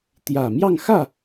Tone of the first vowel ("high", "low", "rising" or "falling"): low